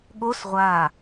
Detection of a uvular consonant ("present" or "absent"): present